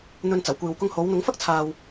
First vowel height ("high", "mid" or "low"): mid